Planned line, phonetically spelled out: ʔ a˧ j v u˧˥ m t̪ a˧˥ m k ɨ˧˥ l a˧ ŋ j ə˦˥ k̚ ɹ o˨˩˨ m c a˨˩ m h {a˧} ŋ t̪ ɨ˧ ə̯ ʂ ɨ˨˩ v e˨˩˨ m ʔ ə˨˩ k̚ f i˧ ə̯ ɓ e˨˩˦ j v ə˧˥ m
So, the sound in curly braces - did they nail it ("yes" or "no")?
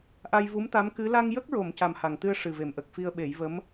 no